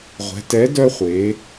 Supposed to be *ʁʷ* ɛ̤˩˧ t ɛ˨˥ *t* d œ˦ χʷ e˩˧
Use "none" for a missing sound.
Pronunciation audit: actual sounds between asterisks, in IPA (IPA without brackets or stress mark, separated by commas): ʁʷ, none